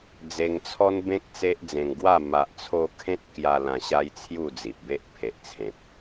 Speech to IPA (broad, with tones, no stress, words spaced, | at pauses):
d͡ze˧ŋt͡sʰɔ˦nbẽ˦k̚ t͡se˦ʔ d͡zẽ˧ŋ ɡwa˥˧ ma˨ʔt͡sʰo˧ kʰẽ˦t̚kja˧ lã˧ ɕa˦jt͡sʰju˥˧d͡zi˨p̚be˦ʔ pʰe˨ʔt͡sʰẽ˨p̚